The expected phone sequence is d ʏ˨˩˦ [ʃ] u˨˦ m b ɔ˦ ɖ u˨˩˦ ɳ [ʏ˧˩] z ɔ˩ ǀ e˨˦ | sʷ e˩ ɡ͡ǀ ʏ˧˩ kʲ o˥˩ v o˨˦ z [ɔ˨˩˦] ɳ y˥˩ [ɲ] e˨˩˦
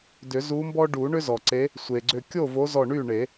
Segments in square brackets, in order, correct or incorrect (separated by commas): incorrect, incorrect, incorrect, incorrect